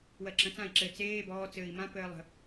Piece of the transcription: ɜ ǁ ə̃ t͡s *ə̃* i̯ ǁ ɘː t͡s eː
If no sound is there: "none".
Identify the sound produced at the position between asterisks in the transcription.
ã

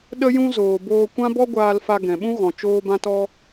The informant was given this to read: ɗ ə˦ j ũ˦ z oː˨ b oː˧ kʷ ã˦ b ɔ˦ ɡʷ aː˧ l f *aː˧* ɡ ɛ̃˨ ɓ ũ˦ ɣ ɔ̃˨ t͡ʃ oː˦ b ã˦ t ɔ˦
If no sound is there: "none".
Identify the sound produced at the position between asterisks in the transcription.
a˧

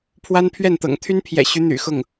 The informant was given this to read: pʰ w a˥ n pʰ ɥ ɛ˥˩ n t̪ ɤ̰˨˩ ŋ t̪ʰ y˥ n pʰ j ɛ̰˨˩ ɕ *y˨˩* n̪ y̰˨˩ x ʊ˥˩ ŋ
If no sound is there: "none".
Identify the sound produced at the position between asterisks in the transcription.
y˧˥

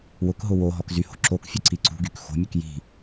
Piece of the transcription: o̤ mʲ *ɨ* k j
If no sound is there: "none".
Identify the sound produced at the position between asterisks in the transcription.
ɨ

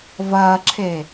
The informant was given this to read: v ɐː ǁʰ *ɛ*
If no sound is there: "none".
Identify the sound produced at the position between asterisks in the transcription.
e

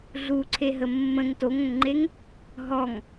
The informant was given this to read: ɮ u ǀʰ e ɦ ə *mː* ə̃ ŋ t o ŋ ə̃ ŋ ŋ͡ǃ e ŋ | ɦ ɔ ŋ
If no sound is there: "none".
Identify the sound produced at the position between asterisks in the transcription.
mː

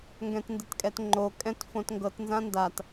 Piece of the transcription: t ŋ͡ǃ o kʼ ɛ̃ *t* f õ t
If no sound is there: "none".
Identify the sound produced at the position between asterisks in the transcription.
t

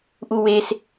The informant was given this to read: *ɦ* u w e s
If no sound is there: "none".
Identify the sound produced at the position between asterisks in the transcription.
ʔ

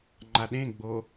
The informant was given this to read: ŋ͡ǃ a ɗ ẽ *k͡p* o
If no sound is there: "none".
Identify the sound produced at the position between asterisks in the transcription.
ɡ͡b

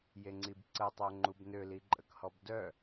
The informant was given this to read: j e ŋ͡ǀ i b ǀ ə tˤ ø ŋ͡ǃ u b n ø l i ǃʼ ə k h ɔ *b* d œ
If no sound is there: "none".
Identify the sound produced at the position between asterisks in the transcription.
b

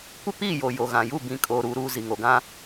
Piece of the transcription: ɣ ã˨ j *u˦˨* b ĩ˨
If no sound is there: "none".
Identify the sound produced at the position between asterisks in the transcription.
u˦˨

